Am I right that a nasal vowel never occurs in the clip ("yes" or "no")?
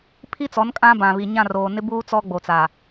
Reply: no